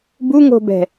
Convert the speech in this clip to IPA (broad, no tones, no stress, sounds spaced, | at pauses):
b u ŋ o̤ b ɛ̤